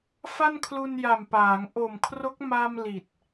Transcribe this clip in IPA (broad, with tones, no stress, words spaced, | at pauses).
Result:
fa˥˩nkʰlu˧nja˨˩mpaː˩˦ŋ ʔo˨˩mkʰro˦˥k̚ma˧m li˨˩t̚